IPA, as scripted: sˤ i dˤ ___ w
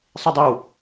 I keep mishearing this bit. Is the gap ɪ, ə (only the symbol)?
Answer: ɪ